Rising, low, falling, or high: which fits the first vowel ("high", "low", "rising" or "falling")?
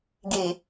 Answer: low